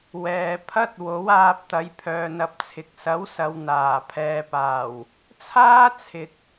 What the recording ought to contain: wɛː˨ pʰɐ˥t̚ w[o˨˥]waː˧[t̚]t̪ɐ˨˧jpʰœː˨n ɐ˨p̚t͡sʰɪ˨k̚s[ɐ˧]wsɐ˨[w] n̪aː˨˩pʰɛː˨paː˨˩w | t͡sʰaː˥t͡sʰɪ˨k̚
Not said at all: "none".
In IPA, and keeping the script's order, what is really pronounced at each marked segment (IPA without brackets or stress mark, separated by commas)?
o˨˥, p̚, ɐ˨˥, w